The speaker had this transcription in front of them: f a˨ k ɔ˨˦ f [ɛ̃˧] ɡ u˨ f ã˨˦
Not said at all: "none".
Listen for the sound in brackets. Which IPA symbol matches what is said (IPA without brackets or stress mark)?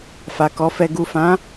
ɛ˧